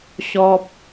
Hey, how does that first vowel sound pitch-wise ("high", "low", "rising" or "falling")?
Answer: high